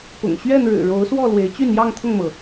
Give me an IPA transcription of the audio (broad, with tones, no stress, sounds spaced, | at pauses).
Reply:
p ʊ̰˨˩ ŋ ɕ ɥ ɛ˥˨ n ɻ ɻ̩˨˩ ɻ o˨˦ ʊ̯ s w ɔ˥˨ l w e˨˦ ɪ̯ t͡ɕ y˥˨ n j ɑ˥˨ ŋ t̪ʰ ʊ˥˨ ŋ m ɤ˩